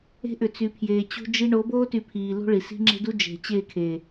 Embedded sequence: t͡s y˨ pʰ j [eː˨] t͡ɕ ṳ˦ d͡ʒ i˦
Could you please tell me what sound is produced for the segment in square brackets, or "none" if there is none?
eː˨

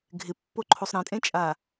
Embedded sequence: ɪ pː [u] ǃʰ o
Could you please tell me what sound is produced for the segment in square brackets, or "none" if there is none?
o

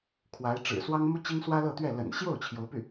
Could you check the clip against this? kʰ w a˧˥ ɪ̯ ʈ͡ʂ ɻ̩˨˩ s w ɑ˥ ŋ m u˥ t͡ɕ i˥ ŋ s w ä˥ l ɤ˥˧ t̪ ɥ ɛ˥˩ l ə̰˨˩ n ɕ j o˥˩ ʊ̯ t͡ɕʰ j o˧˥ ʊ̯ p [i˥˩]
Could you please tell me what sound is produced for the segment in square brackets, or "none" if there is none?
y˥˩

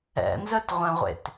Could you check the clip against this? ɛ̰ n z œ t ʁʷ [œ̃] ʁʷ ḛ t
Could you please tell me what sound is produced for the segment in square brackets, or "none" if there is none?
œ̃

